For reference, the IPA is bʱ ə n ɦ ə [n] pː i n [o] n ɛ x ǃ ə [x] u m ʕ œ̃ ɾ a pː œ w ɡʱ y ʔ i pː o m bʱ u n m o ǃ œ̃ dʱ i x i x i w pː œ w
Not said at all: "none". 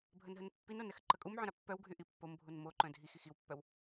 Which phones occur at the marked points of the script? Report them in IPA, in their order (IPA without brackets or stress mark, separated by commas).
n, o, kʼ